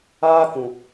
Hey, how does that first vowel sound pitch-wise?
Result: high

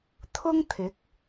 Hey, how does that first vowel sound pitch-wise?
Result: high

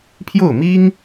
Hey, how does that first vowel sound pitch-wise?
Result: falling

